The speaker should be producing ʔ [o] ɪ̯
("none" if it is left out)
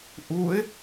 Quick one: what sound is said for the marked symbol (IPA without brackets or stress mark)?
u